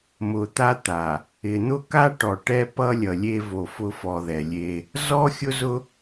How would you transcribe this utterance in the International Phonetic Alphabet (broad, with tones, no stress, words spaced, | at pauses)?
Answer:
mʊ˨t̪a˦ t̪a˨ | ɪ˨n̪ʊ˦ka˦ ʈɔ˨ʈɛ˦pʌ˦lʲʌ˨ lʲe˦vo˨fʊ˦ fɔ˨ðɛ˨lʲe˦ | zɔ˦xʲʊ˦zʊ˦